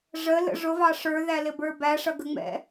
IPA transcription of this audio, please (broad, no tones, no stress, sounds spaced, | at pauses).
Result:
ʐ ə l ə̰ ʐ ʊ v ɑ ʂ ə˞ ð æ l ɪ b ə˞ b æ ʂ ʌ ɡ ə ŋ͡m ɛ̰